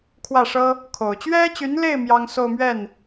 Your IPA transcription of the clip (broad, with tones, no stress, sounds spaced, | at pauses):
kʰ w ä˥˩ ʂ ɤ˥ | kʰ o˨˩ ʊ̯ t͡ɕ ɥ ɛ˥ t͡ɕ y˧˥ n l e˥˩ ɪ̯ m j ɑ˥ ŋ s o˥˧ ʊ̯ m ɥ ɛ˥˩ n